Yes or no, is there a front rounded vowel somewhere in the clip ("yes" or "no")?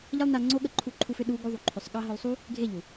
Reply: yes